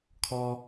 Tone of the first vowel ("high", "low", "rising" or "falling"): high